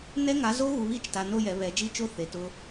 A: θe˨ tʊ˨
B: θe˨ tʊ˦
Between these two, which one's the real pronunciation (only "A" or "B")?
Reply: B